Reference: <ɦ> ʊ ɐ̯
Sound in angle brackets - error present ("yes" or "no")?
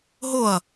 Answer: no